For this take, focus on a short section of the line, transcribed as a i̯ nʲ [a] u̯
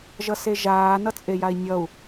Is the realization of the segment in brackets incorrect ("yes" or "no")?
yes